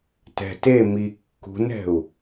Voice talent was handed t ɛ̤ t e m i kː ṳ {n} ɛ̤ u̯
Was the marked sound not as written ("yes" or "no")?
no